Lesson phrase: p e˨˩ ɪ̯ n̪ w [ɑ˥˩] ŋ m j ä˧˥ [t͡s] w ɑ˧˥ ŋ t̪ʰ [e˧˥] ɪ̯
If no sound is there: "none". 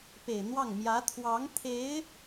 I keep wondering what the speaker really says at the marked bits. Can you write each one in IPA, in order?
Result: ɑ˥˩, t̪ʰ, e˧˥

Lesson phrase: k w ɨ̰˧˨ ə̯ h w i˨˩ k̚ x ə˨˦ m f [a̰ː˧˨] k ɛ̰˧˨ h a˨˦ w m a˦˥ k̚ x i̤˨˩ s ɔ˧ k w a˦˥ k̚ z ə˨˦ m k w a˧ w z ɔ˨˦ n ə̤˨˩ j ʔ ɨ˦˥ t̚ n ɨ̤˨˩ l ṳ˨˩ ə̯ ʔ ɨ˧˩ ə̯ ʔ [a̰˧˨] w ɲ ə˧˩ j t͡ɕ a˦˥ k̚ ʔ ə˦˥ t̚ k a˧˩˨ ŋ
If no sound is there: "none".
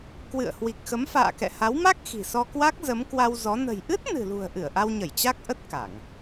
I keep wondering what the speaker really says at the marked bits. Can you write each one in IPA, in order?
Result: a̰ː˧˨, a˧

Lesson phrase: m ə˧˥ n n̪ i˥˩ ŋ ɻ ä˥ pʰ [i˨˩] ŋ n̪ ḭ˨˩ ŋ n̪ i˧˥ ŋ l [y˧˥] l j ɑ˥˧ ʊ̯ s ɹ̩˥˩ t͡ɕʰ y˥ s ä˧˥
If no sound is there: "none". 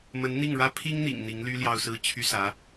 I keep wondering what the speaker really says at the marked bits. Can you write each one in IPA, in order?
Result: i˥, y˥

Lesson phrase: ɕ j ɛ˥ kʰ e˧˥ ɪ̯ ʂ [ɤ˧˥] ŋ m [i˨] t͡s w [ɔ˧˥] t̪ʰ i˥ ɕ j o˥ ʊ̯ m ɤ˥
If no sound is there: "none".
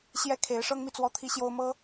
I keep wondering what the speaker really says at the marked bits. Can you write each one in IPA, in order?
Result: ɤ˥, i˨, ɔ˥

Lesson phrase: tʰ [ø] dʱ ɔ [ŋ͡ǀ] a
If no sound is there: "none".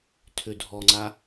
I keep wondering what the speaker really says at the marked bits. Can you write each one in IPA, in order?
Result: ø, ŋ͡ǀ

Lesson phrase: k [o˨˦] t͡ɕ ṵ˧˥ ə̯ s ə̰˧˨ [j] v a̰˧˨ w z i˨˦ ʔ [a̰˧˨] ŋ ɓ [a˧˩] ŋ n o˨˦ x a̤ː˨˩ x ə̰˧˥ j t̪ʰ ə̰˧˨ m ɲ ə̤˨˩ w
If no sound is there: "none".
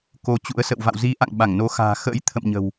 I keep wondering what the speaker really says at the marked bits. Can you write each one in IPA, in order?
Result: o˨˦, w, a̰˧˨, a˧˩

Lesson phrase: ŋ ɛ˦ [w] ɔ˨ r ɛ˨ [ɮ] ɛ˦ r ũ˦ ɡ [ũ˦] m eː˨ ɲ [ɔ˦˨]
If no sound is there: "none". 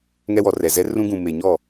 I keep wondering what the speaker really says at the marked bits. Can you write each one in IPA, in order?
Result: w, z, ũ˨, ɔ˦˨

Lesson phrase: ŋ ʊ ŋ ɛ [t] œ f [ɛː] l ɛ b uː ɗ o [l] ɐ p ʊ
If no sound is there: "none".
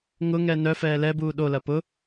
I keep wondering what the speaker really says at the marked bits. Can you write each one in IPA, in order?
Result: n, ɛː, l

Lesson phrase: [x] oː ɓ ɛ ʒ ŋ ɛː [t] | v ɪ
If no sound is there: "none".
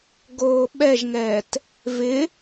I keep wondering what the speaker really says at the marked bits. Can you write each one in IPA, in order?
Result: ɡ, t

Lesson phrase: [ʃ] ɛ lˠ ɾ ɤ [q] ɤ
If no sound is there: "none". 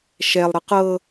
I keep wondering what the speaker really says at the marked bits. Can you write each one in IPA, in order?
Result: ʃ, q

